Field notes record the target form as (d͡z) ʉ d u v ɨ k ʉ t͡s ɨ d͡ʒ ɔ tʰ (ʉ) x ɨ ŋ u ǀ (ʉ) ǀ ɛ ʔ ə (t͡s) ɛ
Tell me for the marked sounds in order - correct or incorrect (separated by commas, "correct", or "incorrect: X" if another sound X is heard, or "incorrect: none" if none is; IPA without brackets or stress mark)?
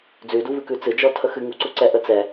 correct, incorrect: ə, incorrect: u, correct